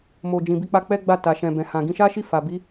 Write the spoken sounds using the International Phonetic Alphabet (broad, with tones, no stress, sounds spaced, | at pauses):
m o˧ d͡ʒ ĩ˧ b i˦ k͡p a˦ k͡p ɛ˦ ɡ͡b a˦˨ t a˨ ʃ ɛ̃˨ b ɛ̃˨ h ã˨ ɡ ĩ˧ ʃ a˦ ʃ i˦˨ f a˨ b i˨˦